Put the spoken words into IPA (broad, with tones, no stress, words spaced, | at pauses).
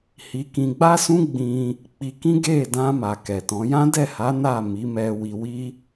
hi˧kĩ˧ ɡ͡ba˦sũ˦ ɡ͡bĩ˧ | k͡pi˧ kĩ˦ɡe˦˨ dã˧ ma˨kɛ˨tɔ̃˨˦ jã˦dɛ˦˨ha˨˦ na˦˨mi˨˦mɛ˧ wi˧wi˦